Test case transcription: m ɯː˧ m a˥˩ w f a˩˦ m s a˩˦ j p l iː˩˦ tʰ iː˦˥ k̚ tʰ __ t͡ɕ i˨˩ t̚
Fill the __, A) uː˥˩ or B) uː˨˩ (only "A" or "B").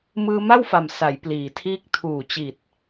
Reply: B